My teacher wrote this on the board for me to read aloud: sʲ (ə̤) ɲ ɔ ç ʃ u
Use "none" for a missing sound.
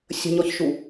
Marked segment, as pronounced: ə̤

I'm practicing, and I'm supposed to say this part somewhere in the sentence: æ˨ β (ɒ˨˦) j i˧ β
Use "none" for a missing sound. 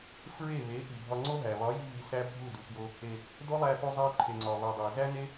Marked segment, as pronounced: ɒ˨˦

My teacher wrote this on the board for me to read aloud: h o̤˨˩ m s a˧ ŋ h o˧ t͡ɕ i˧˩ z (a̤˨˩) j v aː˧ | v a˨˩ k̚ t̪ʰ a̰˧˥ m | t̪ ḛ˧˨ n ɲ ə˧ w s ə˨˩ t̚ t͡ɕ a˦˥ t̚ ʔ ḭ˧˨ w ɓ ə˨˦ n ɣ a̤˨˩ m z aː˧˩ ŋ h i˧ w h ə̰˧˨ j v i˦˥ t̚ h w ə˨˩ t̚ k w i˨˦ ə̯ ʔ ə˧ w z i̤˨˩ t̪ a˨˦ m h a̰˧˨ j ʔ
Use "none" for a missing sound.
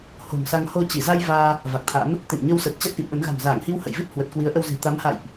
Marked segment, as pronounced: a˧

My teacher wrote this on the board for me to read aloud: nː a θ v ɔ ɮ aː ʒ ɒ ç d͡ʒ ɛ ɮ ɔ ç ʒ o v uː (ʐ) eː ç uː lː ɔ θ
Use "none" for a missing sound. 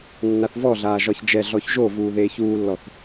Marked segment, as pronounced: ð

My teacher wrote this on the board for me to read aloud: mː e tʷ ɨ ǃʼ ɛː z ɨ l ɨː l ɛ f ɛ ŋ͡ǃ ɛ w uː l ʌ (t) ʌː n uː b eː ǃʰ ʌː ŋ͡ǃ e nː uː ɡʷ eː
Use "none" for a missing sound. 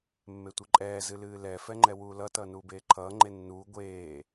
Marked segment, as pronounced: t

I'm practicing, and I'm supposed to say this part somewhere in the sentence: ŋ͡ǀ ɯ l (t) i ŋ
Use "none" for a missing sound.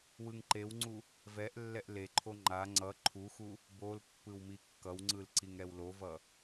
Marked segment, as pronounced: ǀ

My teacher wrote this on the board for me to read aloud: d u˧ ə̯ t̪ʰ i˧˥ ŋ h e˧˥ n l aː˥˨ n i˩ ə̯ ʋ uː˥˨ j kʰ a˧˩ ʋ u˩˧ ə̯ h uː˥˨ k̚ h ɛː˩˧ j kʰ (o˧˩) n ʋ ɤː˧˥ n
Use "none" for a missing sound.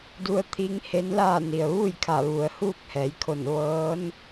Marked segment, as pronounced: o˧˩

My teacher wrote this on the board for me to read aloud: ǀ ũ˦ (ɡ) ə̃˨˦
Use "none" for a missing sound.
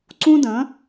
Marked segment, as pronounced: d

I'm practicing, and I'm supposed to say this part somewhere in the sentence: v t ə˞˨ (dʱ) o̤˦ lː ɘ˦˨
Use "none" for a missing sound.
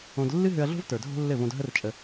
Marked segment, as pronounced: dʱ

